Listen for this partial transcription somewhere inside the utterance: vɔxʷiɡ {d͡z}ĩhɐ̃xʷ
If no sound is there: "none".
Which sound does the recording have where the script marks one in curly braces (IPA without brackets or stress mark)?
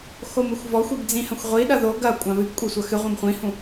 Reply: d͡z